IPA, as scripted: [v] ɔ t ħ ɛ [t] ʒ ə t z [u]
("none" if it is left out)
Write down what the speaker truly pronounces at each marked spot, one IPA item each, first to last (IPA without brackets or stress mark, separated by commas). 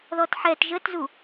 ð, t, u